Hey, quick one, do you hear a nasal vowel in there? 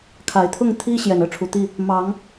no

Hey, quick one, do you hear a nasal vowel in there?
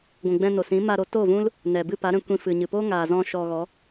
yes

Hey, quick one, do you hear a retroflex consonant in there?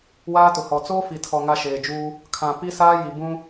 no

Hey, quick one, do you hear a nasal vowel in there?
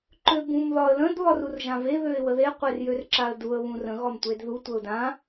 yes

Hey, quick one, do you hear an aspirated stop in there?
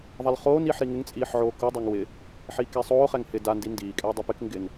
no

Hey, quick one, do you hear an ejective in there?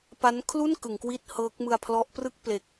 no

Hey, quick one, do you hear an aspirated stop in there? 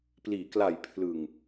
yes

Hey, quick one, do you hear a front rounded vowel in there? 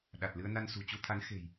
no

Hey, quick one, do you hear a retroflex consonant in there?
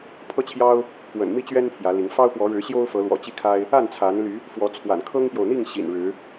yes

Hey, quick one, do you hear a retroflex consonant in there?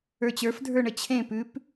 yes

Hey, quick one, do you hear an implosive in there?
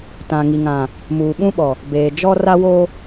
yes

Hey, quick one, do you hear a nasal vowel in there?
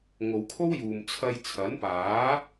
no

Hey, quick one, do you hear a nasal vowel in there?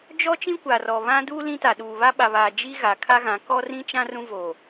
yes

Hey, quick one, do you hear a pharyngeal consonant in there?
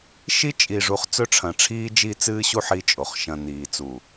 yes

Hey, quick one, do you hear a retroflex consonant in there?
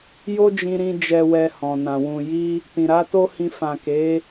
no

